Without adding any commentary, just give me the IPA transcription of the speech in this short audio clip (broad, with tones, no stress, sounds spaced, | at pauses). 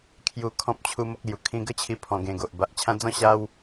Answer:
kʰ j u˧ kʰ ɔ̃˦ p̚ t͡ɕʰ u˧ m o˦ k̚ l j u˨˩ kʰ ĩ˧ ɡ ə˥˧ t͡ɕʰ i˧ pʰ ɔ̃˧ ɡ ẽ˧ ɡ o˨ ʔ b a˨ ʔ t͡ɕʰ ã˧ d͡z ɔ̃˥˧ ɕ a˦ w